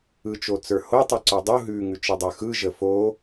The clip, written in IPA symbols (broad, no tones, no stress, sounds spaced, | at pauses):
ɯ t͡ʃ o t͡s ə˞ h o tˤ ɯ ǀ ə˞ dˤ u ɦ ʉ ŋ ʉ t͡ʃ ɯ dˤ ə˞ x ɯ ʒ ə f o